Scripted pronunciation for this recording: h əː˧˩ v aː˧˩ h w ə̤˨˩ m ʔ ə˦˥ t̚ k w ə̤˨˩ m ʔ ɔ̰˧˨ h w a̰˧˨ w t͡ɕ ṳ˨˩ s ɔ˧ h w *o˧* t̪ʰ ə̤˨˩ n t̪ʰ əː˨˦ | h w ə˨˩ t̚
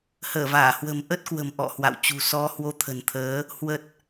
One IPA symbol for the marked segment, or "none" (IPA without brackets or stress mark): o˧